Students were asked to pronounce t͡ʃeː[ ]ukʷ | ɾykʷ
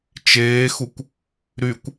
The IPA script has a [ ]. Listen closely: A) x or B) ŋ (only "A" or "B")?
A